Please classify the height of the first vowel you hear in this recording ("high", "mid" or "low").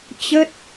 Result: mid